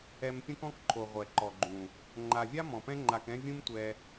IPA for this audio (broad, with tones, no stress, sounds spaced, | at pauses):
ɛ˧ m pʲ ũ˦ k ɔ̃˦ k ǃʰ o˨ ʁʷ ɛ˨ ǃ ɔ˨ ɡ͡ǃ ũ˨ | ŋ͡ǃ a˨ vʲ a˦ m ɔ̃˨ p ɛ̃˦ ŋ͡ǃ a˧ k ɛ̃˦ vʲ ũ˦ m tʷ ɛ˧